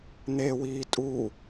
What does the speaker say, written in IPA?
n̪ewiː tʼu

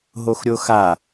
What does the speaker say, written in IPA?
ɦoxɾʲoxa

